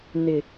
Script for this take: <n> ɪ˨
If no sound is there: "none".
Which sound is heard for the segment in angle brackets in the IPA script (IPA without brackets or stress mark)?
n